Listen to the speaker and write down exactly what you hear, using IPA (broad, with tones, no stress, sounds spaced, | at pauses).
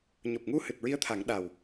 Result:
ɲ o˨˩ p̚ ŋ u˧ h ɨ˨˩ t̚ ɹ i˧˥ ə̯ t̪ʰ a˨˩˦ ŋ ɗ a˨˩ w